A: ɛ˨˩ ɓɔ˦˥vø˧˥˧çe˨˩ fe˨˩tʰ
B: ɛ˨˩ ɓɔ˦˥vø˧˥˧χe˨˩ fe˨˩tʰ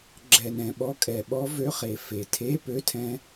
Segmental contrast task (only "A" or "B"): B